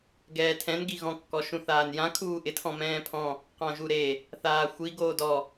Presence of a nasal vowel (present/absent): present